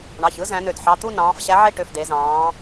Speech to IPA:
ɳ ɑ˩˧˩ ç ɯ˨˥ z æ̃˨˥ n ø˧˩ d ħ ɑ˩˧˩ t̪ u˥˧ n ɑ̃ː˩˧ f ɕ æ˨˥ ʕ e˥˧ ʈ ø˩˧˩ f d e˩˧ z ɑ̃ː˩˧

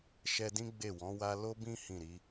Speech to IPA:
ʃ ɛ˧ d ĩ˦ ɡ͡b e˦˨ w ɔ̃˨˦ w a˦ l o˦ b ĩ˦ h ĩ˦˨ ɾ i˨˦

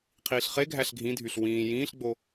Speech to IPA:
qʰ iː ɬ χ e ɡʱ æ ɬ ɡʱ ĩ dʱ y ɬ w ĩː j ĩː ɬ ɡ͡b o

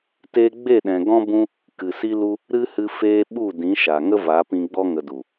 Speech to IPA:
t eː˧ ɡ͡b e˦˨ ɗ ɛ̃˨ ɡ ɔ̃˦ b ũ˦ | k ɨ˨ s i˦ l u˦ | ɾ ɨ˦ h ɨ˧ f eː˧ ɓ u˦˨ d ĩ˨˦ ʃ a˨ ŋ ə˦ v a˨˦ p ĩ˧ ɡ͡b ɔ˦ ŋ ə˨ d u˨

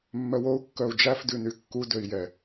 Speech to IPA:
mː œ w o u̯ kː œ u̯ d͡ʒ æ f d ʉ n y kː u d ø i̯ j ɛ

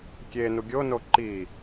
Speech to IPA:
kʲ e n u ɡʲ o n o ǃ i

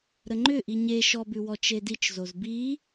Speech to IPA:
ɾ ə ŋ͡ǃ ʏ ʔ i ɲ e ʃ ɔ b ʉ w ɔ t͡ʃ e d i t͡ʃ z o z b i

